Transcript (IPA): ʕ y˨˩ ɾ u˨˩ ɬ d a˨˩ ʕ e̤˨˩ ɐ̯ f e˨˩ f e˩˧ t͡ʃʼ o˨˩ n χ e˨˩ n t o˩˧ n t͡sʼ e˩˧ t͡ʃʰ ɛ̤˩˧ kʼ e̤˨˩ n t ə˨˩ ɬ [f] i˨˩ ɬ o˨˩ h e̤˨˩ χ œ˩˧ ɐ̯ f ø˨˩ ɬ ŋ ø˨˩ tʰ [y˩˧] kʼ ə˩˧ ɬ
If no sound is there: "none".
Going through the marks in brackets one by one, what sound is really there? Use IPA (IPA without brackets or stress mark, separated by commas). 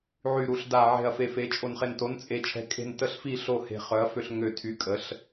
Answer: f, y˩˧